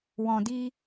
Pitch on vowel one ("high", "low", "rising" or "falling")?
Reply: low